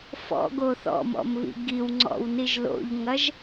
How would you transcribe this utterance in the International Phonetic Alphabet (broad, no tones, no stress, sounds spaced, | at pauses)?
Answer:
f ɔ̰ ɡ o θ ɔ̰ m ɔ̰ m β ḭ ɡ i w ŋ͡ǀ ɔ̰ w n i ʒ l o̰ ʎ ŋ ɐ ʒ